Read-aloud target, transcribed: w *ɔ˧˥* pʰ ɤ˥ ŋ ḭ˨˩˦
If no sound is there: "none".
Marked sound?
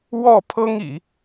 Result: ɔ˥˩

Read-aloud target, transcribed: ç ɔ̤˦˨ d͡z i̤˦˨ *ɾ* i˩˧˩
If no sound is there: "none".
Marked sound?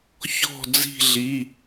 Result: ɮ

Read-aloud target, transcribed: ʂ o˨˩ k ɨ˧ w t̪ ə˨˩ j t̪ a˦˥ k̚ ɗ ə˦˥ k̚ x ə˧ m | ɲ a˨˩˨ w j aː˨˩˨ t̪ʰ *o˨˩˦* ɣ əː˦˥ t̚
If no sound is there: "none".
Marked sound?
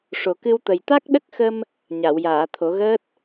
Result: o˨˩˦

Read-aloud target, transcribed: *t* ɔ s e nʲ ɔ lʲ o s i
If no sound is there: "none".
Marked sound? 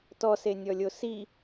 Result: t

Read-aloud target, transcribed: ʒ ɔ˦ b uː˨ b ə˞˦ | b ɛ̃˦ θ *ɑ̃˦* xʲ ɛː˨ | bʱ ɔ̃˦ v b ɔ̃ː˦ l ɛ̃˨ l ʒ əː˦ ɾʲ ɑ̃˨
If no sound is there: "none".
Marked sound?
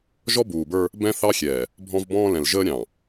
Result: ɑ˦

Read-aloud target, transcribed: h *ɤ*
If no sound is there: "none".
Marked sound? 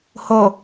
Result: o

